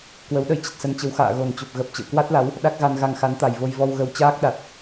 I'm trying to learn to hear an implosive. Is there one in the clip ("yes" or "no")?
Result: yes